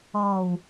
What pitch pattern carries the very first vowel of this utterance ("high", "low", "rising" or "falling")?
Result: low